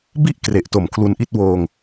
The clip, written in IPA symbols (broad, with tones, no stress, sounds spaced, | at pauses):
b i˥˩ ʔ k r e˨˩ ʔ t o˨˩ m kʰ l u˧ n ʔ i˥˩ t̚ w oː˧ ŋ